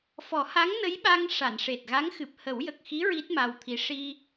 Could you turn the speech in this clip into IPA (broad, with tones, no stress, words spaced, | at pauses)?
fɔ˨˩˦ha˧˥ŋnə˧˥jɓa˧ŋ ʂa˨˩˨nʂe˨˩t̚ɣa˧˥ŋxɨ˨˩p̚ hə˨˩˦wjə˨˩k̚xi˧˥ ɹi˦˥t̚ma˧wt̪ʰi˧˥ ʂi˧